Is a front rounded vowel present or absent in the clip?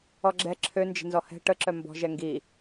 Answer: present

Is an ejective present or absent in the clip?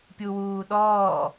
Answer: absent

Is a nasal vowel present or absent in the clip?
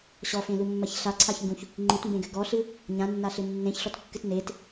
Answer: present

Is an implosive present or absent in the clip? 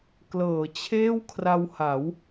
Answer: absent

